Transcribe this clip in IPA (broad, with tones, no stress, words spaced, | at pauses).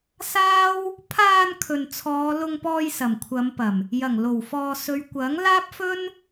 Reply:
saː˥w | pʰaː˧n kʰɵ˨nt͡sʰɔː˨˧lʊ˧ŋpɔː˧j sɐ˨˩mkʷʰɐ˨˧mpɐ˨˩m | jɐ˨˩ŋ lo˨˩wfɔː˨sɵ˨˧ɥ kʷɐ˨˥ŋ laː˥p̚fɵ˥n